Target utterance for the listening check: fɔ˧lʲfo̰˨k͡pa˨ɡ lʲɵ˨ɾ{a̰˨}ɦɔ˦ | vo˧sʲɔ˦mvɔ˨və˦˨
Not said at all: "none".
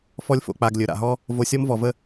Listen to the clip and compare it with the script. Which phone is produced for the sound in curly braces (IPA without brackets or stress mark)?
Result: a̰˨